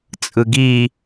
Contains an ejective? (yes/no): yes